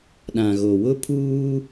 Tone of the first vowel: low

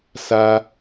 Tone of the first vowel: high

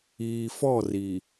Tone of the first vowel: low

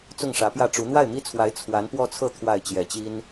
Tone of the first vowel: falling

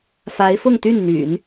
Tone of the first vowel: rising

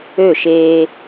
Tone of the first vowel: falling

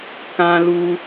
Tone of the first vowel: low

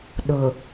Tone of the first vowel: low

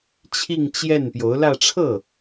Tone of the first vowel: falling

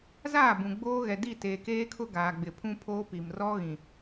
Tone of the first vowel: falling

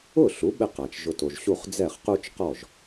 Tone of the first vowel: falling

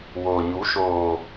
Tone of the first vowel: low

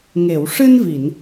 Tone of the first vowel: low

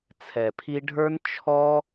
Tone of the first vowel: low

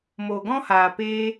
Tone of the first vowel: low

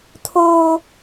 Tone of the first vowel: high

